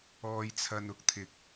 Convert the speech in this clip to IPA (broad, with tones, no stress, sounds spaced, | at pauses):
ɔː˧ j t͡sʰ ɐ˧ n ʊ˧ k̚ t̪ʰ ɪ˨˥ k̚